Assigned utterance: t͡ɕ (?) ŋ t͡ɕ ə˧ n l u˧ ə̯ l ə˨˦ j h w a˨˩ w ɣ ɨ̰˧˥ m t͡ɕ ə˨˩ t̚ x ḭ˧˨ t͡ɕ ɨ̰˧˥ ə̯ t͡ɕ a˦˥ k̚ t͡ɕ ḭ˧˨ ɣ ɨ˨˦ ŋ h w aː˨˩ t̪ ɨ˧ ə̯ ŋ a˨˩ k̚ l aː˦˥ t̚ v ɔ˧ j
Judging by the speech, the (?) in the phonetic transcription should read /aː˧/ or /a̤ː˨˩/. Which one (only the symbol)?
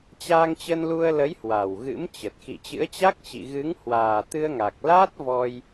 aː˧